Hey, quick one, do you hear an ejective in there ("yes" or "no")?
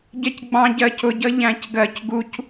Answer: no